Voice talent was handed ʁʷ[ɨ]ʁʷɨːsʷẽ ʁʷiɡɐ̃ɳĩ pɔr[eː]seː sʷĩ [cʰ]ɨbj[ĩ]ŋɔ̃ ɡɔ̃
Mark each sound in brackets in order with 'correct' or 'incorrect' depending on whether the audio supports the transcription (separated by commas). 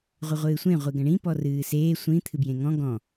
correct, incorrect, incorrect, incorrect